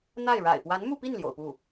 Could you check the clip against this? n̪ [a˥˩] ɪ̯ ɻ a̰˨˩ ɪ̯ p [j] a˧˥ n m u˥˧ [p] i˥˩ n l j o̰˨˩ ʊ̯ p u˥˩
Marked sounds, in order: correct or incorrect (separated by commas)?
correct, incorrect, correct